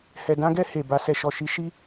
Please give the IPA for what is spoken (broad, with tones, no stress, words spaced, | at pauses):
hɛ˨dã˧ɡɛ˧ he˨ba˧ sɛ˨ʃɔ˨ʃi˨˦ ʃi˦